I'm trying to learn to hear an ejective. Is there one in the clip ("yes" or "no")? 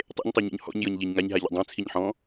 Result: no